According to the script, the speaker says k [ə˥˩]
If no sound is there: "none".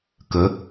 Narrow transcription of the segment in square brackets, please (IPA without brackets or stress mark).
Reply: ə˨˦